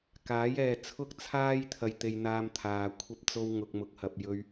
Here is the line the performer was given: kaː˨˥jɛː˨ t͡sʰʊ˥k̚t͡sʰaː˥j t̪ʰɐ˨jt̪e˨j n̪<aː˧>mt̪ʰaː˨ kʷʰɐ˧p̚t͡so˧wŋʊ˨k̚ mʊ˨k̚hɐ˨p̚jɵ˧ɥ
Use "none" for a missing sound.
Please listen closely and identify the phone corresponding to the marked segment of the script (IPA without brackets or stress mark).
aː˧